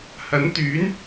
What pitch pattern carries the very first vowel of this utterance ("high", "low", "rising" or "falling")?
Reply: rising